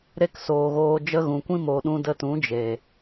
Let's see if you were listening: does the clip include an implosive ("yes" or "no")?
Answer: yes